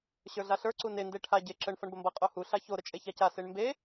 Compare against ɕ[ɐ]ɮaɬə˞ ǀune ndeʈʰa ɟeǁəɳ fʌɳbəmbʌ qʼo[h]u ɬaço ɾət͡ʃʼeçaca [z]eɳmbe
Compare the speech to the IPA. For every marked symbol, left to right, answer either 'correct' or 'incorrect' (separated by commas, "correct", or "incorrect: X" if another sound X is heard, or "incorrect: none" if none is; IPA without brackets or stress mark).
incorrect: ə˞, correct, incorrect: s